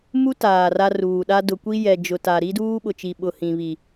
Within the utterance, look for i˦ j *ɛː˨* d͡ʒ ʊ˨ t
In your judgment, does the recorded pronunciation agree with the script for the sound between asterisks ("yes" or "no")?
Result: no